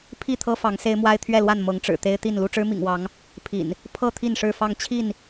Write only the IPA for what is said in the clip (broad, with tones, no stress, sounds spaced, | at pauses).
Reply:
pʰ i˥˨ t̪ʰ ɤ˦ f ɑ˨˦ ŋ s e˦ ɪ̯ m w a˦ ɪ̯ t̪ʰ ɥ ɛ˥˨ l w a˥˨ n m ɤ˨˦ ŋ ʈ͡ʂ ɻ̩˨˩ t̪ e˦ ɪ̯ t̪ i˥˨ n l u˥˨ ʈ͡ʂ ɻ̩˦ m ḭ˨˩ ŋ w ɑ˨˦ ŋ | pʰ ḭ˨˩ n | pʰ ɤ˥˨ t̪ʰ i˥˨ n ʂ ɻ̩˥˨ f ɑ˥˨ ŋ t͡ɕʰ i˥˨ n